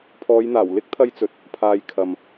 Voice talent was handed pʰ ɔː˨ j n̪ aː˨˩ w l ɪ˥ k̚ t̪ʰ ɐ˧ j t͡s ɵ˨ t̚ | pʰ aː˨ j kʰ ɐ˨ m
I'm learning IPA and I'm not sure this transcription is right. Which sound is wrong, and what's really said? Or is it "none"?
ɔː˨ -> ɔː˨˧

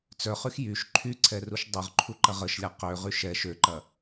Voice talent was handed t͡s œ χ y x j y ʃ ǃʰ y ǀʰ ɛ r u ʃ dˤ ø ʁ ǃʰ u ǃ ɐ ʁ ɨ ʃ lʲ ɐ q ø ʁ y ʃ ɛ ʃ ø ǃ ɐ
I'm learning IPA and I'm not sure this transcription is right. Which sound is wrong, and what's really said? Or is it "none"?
ɨ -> ə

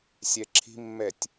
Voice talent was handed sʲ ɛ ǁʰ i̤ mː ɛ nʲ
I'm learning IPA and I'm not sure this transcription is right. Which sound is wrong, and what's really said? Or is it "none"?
nʲ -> tʲ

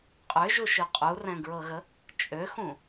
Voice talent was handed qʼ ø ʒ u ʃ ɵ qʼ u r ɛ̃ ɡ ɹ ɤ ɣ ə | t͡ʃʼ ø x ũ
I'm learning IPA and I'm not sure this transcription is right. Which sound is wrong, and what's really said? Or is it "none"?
none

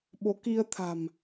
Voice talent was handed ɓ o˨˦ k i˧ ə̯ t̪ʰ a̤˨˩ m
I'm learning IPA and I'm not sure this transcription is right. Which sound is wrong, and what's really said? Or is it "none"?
none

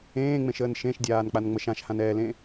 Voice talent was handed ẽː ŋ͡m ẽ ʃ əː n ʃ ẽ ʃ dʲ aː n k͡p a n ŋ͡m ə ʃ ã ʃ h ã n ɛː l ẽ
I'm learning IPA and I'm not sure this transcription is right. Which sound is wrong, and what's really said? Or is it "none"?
none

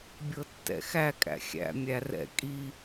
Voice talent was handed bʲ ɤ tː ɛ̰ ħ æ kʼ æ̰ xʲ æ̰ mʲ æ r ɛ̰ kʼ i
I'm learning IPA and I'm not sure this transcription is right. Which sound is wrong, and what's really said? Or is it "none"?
ħ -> x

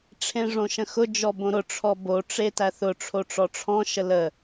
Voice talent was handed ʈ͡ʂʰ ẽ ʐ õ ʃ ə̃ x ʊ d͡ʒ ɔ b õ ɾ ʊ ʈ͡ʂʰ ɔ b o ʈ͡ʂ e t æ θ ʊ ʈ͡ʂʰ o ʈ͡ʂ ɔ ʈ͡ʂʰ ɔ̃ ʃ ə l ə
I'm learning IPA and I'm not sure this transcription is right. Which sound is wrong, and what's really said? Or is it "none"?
none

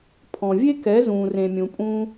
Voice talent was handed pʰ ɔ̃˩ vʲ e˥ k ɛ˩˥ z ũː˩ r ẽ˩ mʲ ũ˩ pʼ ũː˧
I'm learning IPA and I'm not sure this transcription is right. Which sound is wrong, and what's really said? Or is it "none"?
none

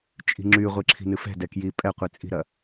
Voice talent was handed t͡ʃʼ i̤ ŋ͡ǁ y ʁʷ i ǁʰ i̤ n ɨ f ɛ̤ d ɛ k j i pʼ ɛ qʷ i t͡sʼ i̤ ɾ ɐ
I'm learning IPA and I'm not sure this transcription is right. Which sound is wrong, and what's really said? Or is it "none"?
none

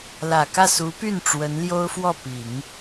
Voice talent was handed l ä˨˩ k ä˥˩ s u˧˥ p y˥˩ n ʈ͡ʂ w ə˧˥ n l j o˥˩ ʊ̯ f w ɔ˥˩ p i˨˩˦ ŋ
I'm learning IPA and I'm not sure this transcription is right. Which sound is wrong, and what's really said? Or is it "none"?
o˥˩ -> o˥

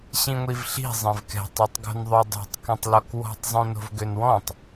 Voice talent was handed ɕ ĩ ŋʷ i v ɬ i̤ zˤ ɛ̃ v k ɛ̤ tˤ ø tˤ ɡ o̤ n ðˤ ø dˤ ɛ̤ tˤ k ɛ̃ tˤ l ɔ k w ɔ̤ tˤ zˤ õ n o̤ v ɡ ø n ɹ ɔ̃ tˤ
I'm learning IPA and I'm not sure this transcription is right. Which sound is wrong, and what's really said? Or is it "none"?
ɹ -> w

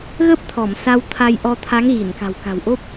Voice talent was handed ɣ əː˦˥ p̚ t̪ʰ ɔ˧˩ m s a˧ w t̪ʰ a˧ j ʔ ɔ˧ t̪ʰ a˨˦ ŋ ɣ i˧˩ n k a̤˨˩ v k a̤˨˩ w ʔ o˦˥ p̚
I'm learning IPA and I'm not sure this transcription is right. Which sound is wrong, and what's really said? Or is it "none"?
v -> w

